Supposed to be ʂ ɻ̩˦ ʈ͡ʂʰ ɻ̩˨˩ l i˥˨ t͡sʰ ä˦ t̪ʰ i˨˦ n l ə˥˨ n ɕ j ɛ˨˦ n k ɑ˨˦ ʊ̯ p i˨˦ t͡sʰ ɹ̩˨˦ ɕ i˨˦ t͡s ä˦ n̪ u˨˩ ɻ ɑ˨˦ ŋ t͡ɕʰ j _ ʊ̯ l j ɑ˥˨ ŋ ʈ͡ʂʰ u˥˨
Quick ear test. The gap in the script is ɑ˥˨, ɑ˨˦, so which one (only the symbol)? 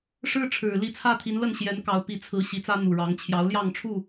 ɑ˨˦